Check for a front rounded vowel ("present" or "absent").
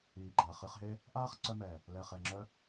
present